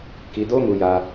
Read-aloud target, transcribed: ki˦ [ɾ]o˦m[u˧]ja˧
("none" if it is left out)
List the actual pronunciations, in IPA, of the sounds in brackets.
d, u˧

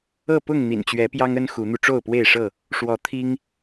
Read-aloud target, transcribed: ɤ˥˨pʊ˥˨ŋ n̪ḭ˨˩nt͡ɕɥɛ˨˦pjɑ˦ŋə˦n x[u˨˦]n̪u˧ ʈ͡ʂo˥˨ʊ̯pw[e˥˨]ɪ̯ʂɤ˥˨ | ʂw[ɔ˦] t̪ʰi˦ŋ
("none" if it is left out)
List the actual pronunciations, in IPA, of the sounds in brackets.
u˨˦, e˥˨, ɔ˨˦

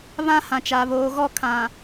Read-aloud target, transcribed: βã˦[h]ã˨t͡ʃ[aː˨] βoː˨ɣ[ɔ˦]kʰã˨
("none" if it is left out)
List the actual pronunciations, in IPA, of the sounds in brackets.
h, a˨, ɔ˦˨

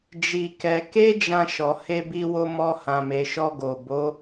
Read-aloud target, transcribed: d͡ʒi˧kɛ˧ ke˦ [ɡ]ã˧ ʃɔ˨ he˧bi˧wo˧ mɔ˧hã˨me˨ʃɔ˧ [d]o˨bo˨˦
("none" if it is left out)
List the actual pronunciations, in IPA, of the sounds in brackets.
d͡ʒ, ɡ

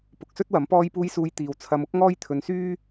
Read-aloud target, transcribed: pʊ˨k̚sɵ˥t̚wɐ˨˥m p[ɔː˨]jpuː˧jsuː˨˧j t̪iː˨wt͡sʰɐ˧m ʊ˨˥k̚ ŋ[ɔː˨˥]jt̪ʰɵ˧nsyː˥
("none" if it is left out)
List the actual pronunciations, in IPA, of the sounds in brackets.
ɔː˧, ɔː˥

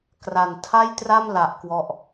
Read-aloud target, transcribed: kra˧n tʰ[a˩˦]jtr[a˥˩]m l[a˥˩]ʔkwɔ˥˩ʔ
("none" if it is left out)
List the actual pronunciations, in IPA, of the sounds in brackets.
a˥˩, a˥˩, a˦˥

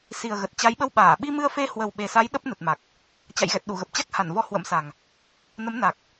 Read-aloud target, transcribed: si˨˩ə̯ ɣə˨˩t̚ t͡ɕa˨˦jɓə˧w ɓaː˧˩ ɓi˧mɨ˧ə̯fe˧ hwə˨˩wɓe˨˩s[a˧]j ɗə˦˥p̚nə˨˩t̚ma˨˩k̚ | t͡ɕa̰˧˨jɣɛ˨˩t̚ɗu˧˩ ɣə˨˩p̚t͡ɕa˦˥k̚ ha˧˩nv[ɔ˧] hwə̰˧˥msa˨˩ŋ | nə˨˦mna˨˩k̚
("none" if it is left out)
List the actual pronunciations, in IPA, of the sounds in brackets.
a˨˦, ɔ˧

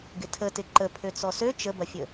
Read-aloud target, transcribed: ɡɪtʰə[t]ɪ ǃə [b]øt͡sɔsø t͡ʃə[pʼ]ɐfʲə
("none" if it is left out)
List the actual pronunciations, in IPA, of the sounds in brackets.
t, pʰ, b

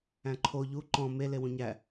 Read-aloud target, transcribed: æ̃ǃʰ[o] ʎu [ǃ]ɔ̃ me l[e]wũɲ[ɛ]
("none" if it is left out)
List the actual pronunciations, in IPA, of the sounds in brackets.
o, ǃ, e, æ

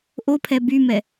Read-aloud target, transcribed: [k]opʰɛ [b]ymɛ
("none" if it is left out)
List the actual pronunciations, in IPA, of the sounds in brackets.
ʔ, b

